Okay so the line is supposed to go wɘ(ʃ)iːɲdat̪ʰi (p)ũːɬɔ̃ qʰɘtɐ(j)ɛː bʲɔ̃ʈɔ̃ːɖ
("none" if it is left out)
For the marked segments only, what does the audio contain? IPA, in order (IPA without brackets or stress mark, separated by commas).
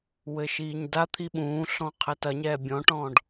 ʃ, ɓ, ɲ